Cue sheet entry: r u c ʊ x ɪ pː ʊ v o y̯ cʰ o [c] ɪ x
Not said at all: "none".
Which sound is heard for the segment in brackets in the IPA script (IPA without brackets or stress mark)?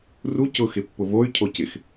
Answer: c